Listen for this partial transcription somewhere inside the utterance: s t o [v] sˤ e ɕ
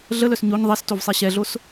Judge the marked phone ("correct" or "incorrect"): correct